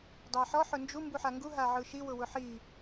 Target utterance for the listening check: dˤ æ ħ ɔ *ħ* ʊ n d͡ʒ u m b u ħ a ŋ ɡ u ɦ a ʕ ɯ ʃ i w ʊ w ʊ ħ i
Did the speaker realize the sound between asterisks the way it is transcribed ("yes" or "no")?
yes